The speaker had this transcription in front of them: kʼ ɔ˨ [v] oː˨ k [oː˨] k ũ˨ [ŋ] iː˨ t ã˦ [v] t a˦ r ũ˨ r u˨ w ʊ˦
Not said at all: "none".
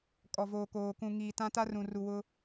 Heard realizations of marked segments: v, oː˨, ŋ, none

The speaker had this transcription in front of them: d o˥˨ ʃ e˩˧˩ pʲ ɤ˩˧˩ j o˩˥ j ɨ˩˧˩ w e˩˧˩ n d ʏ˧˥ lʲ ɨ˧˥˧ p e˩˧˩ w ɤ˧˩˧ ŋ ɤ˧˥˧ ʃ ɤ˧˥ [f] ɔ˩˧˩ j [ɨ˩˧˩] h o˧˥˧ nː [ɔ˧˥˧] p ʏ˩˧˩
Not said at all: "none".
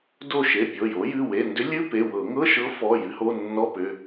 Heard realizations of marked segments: f, ɨ˧˥, ɔ˧˥˧

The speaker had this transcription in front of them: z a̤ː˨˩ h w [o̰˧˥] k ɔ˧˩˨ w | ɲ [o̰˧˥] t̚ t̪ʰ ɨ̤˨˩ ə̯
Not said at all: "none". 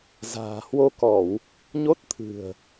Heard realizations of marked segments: o˧, o˦˥

